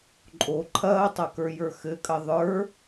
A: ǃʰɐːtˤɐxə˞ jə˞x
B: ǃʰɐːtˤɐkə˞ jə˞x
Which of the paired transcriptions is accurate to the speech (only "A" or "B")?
B